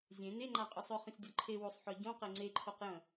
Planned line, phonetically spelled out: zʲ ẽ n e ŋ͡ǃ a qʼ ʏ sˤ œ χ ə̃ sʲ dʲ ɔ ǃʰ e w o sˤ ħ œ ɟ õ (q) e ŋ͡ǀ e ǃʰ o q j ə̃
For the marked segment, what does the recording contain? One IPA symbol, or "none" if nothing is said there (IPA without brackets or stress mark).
q